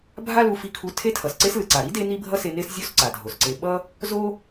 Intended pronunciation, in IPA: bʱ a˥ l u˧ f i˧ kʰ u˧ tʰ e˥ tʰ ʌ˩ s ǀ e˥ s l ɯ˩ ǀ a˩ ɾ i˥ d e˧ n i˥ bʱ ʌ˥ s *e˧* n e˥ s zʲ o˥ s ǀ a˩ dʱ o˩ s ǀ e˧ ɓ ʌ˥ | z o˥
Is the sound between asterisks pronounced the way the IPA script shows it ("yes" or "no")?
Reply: yes